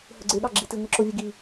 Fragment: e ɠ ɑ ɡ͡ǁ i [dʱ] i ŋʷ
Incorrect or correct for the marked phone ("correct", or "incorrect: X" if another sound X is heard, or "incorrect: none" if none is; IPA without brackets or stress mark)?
incorrect: t